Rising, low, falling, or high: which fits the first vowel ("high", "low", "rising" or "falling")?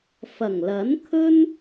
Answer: low